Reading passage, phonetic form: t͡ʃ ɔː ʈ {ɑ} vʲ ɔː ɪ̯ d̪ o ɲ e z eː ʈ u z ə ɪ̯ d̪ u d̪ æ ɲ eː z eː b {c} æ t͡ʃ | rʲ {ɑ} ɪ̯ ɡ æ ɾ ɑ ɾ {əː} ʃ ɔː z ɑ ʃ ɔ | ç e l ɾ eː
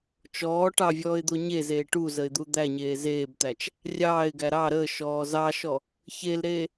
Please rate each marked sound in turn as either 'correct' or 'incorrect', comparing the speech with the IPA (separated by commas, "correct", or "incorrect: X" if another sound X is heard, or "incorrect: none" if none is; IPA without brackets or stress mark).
correct, incorrect: t̪, incorrect: ɑː, correct